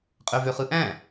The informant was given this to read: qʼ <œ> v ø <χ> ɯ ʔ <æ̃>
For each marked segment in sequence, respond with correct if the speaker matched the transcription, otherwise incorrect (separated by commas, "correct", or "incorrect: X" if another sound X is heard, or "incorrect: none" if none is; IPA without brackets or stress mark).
incorrect: ø, correct, correct